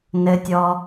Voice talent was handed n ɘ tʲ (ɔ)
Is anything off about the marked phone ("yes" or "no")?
no